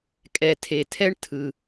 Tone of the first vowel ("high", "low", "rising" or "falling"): low